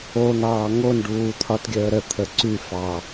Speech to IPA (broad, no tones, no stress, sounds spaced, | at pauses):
o n̪ ɑː ŋ o n ɖ uː t̪ʰ ɒ t ɡʲ əː ɾ ə t̪ʰ ə ǀ y f ɑ